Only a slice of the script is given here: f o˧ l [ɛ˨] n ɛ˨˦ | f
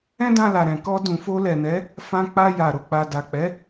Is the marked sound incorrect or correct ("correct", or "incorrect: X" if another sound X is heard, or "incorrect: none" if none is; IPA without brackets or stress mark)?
correct